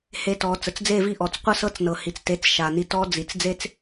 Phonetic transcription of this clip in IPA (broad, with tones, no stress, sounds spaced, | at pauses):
h e˧ t ɔ˩˧ t͡s ə˩˧ t͡s d͡z e˥˨ v i˥˨ ʔ ɔ˩˧˩ t͡s qʷ ə˥˨ s ɤ˦˥ t͡s n ɤ˩ h i˩ t͡s t e˩˧˩ t͡s ʃ a˩ n i˧ t ɔ˦˥ d͡z i˩ t͡s d͡z e˧ t͡s